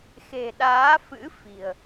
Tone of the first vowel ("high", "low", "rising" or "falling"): low